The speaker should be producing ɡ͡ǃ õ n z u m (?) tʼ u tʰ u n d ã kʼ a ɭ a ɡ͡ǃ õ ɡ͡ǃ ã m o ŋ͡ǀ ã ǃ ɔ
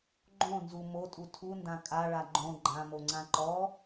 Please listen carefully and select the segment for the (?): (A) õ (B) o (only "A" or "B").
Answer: B